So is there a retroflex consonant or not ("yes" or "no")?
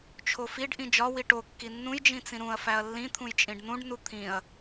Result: yes